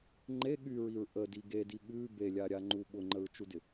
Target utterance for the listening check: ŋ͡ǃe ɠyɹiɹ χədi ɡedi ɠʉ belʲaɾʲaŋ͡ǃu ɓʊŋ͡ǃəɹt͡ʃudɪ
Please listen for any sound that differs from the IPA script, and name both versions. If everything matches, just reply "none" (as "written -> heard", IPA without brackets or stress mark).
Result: χ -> ʔ